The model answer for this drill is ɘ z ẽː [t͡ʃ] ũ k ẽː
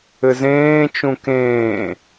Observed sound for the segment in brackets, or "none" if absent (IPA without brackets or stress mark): t͡ʃ